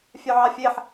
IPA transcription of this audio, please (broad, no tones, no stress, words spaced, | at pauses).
fʲœʕɑfʲeħ